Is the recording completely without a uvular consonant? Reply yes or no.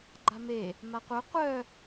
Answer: no